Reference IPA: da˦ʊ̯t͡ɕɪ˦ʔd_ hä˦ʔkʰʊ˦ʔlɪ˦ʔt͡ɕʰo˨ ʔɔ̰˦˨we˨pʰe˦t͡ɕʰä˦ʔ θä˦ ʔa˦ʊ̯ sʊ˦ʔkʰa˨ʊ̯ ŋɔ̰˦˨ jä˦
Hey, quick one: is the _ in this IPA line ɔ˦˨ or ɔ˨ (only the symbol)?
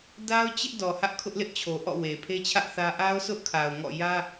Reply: ɔ˨